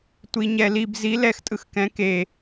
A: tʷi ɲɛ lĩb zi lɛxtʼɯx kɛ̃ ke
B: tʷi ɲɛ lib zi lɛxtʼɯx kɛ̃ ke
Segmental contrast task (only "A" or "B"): B